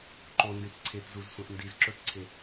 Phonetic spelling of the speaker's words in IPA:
ǃondĩt ǀʰetzuzsʷẽʔ ndizǁɵtǀʰe

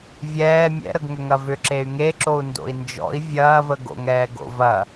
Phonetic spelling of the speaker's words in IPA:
vʲɛː mʲɛ̰ɾəɡ ŋʏŋɐvʏ ǁey̯ŋeǁou̯ ndo̰i̯nd͡ʒɔ̰i̯ vʲɐːvəɡo̰ŋɛːɡ o̰vɐ

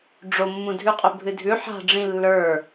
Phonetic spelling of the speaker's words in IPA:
ɖ͡ʐomːũ dʱʉqʼœbʱɨdʱʉ ħa̤ɖ͡ʐĩ lːə˞

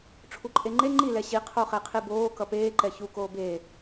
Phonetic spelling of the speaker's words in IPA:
ʈ͡ʂʰuǃʼeŋ͡ǃe ŋ͡ǃi lɛɕi qʰoχɛqʰiboː kʌpeː ǃɛçu koːbeː

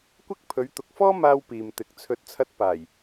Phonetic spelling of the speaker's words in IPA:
kʷɪ˥k̚ pʰɵ˨˧ɥt̪ʊ˨k̚fɔː˥maː˧w piː˨mt̪ɪ˨k̚ t͡sʰɵ˨˥t̚t͡sʰɐ˧t̚ paː˨˩j

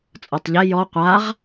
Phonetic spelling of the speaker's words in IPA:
t͡sʼɔtˤʎɛ jɔ qʷaʁ

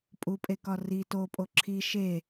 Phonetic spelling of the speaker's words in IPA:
pʼupʼekɒ ri topʼo ǁʰi ʃe

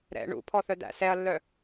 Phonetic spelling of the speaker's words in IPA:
ɾɛ̰ ɳṵpʰɔθœdæ̰ sɛɐ̯lːœ

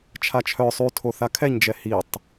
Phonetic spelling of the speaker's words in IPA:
t͡ʃʰat͡ʃʰœ sˤytʰo θakʰɛɲd͡ʒɛ hitˤ

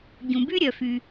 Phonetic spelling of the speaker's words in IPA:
ɟũ˩by˥ ɾʲœ˩fy˩

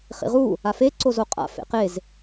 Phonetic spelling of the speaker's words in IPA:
χḭʁu | afe ǀozoqʼa̰ fḛqez

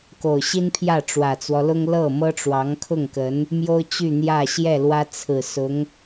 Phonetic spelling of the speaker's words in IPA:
ko˨˩ʊ̯ɕi˥n pʰjä˥˩ʈ͡ʂwä˨˩t͡swɔ˦lʊ˥ŋ lɤ˥˩ mɤ˥ʈ͡ʂwɑ˧˥ŋkʰʊ˥˩ŋkə˧˥n | mjo˥ʊ̯ t͡ɕy˥˧n̪jä˥˧ ɕjɛ˥˩lwä˥ t͡sʰɹ̩˨˩sʊ˧˥ŋ

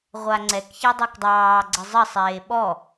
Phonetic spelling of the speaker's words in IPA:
ʁʷaŋ͡ǀɛkçɛ dˤɛkdˤɑːɡ͡ǀɘ zˤɘsˤeː ɓɔ

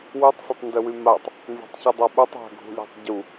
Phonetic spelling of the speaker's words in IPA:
wytˤsatˤndœwy matˤ | nzɔ̤tˤçɨdˤaɓutˤ a̤ɡʱṳlʲa̤tˤ ɟu

